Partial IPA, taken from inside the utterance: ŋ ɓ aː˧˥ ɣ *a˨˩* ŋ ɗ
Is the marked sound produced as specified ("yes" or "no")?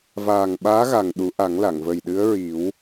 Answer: yes